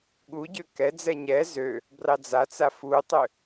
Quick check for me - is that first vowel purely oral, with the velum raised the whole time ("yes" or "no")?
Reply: yes